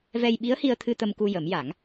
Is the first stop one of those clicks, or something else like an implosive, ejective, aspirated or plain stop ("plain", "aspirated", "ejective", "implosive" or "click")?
implosive